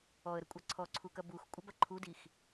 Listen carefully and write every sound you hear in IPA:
ɔə̯ɾəkʷʼɑ ǀʰɔǀʰukɐ bux kʷʼəbɐ ǃʰudix

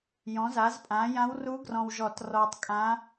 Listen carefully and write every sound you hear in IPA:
jɔ̃˩˥za˩˥zpʼã˩˥ jã˧˥wru˧˥ɡrɔ̃˨wʒɔ˨˩˦t rɔː˨tˤkʼã˧˥

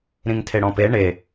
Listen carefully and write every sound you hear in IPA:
ɾĩŋtʰeɽɔ̃pe ɳe

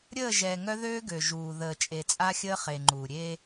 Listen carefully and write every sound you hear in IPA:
ɾʲəː˦˨ʒɛ˨ŋœ˦ðøː˦ ɡø˨ʒuː˨ ðəː˨t͡ʃʼe˨t͡sʼa˦xʲəː˦ χe˨ŋ͡ǃuː˨ ɾʲe˦

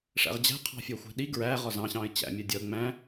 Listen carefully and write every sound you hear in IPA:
ʂæ̰ʁd͡ʑæ̤qʰɑ̤ fʲɜxʷæ̤ɗi ɡɹæ ʁɒzɑ̃ɕɑ̃ɪ̯ t͡ɕæ̰mʲɜ dʲɒʊ̯ŋ͡mæ̃

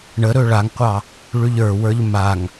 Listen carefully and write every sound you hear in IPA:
ɳəɾɵ ɭaŋqʷɑ | ɭʉʎə˞wə˞ʎ maŋ

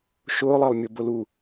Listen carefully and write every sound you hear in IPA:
ʃʊːlˠəːlˠ mʲubʊlu

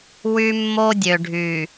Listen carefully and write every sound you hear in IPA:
wy˦mːo˦dʲø˨ɖʱy˨

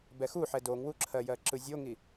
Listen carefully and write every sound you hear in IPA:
bɛxuħɛ doŋwuǁʰɜjɜ ǁɯzʲoŋi

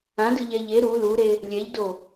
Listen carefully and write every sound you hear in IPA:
ãdɯʎɛ ʎe ɾu luɾe | lʲɛʎdo

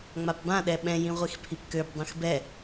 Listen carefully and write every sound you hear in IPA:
ŋ͡mapbã ɗɛɓɛ̃ jĩʁʷixpʰipkøb dˤĩxbɛ

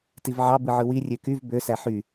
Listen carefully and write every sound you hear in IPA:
tivʕɑ bɯʕɯwi rʲøkyv bø sæħy

